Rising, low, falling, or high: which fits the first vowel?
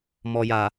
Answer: low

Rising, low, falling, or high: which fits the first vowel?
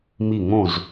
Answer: falling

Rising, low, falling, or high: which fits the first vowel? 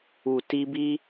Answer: low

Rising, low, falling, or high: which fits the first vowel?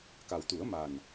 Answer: low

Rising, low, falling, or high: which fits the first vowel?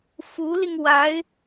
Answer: rising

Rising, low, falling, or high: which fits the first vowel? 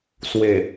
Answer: low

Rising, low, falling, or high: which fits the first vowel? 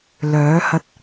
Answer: rising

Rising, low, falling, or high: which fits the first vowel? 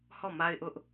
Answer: falling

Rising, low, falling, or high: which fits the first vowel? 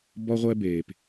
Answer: high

